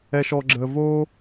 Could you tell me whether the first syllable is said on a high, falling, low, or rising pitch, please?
low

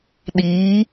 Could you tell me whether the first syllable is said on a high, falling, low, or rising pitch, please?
rising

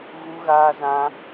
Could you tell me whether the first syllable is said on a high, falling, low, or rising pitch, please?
high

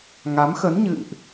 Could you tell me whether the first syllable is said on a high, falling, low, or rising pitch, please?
rising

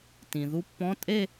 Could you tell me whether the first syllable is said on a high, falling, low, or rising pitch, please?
low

